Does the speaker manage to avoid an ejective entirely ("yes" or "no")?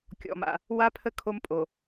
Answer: no